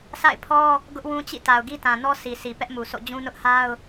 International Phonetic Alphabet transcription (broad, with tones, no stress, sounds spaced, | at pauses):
s a̰˦˨ ɪ̯ pʰ ɔ˦ | ɡ ʊ˦ ʔ w ũ˦ t͡ɕ ḭ˦˨ t a˨ ʊ̯ ɡ i˦ t ã˨ n ɔ˦ sʰ i˨ sʰ i˨ p ɛ˦ ʔ m u˨ sʰ o̰˦˨ d͡ʑ ũ˦ n ʊ˦ ʔ h a˦ ʊ̯